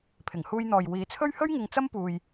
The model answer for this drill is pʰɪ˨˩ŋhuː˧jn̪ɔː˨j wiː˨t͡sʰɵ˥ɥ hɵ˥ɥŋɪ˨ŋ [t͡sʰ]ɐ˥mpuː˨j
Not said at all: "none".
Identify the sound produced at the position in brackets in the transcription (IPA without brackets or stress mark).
t͡s